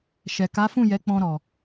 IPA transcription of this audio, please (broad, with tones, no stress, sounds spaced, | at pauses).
ʃ ɛ˨ k a˨˦ f ũ˦˨ j ɛ˨˦ k͡p ɔ̃˧ ɾ ɔ˨